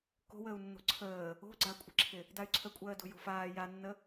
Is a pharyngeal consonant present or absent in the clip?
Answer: absent